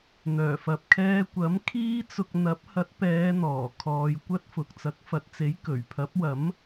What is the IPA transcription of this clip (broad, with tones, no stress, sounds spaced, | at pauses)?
n̪ œː˨˩ f ɐ˨ p̚ kʰ ɛː˧ kʷ ɐ˨˥ m kʰ iː˥ t͡s ʊ˧ k̚ n̪ ɐ˨˥ p̚ h ɐ˨˥ t̚ p ɛː˨˧ n̪ ɔː˨˩ kʰ ɔː˨ j kʷ ɐ˥ t̚ f ʊ˨ k̚ t͡s ɐ˨˥ k̚ f ɐ˨ t̚ t͡s e˨˥ j k ɵ˨˩ ɥ pʰ ɐ˨˥ p̚ w ɐ˨˥ m